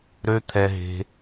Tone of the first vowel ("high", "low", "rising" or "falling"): high